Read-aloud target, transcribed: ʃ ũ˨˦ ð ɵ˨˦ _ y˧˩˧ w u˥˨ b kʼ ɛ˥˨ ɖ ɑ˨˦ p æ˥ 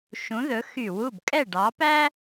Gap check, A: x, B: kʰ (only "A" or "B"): A